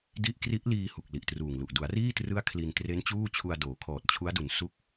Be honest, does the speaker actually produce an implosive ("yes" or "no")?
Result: no